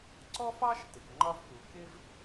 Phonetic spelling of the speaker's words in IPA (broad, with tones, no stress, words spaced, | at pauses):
ǀɔ˥fɑ˥ʃ tɪ˩kŋ͡ǃɒ˥vku˩ kɪ˥v